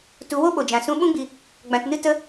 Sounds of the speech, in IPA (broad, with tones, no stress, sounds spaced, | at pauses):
t u˧ w o˦ ɓ o˨ d͡ʒ ã˨ s ũ˧ ɓ ũ˦ ɡ͡b i˧ | ɡ͡b ã˧ t n ɨ˦ t ə˦